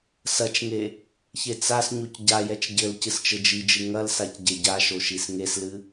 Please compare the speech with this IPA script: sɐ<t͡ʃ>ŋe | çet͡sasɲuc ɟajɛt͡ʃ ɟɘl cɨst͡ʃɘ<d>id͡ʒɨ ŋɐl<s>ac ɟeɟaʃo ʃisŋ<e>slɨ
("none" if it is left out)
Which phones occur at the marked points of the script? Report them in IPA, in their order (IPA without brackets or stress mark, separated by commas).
t͡ʃ, d͡ʒ, s, e